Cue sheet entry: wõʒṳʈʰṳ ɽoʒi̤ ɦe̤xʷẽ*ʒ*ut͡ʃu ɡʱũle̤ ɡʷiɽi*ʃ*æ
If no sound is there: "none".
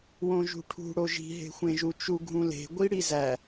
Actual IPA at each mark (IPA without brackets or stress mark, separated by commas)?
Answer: ʒ, z